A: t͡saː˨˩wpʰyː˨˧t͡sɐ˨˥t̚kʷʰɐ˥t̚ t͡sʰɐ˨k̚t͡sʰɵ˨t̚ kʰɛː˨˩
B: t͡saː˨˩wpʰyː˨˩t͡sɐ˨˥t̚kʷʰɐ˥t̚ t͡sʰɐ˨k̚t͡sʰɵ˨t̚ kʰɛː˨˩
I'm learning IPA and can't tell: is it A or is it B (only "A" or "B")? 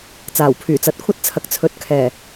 B